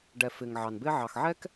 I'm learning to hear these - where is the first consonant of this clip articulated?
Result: retroflex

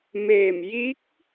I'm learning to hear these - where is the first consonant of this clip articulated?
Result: lips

